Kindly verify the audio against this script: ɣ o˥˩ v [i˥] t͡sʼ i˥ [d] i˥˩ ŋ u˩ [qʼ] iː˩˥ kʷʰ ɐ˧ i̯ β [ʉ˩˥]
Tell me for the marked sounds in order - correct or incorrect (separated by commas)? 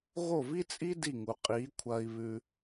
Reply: correct, correct, correct, incorrect